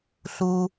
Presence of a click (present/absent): absent